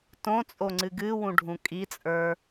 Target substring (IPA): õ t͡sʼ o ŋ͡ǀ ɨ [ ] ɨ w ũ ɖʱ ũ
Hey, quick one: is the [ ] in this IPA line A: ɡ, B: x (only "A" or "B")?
A